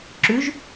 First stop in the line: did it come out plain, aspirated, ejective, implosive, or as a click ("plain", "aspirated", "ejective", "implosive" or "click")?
click